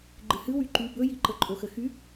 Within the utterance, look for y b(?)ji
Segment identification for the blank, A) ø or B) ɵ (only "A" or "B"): B